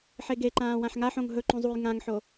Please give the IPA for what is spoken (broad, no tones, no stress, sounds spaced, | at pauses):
ħ e ɡ e ǃ ãː w ã ħ ŋ a ħ õ ŋ ɦ ɵ ǃ ũ zˤ u j ŋ ã ŋ ħ o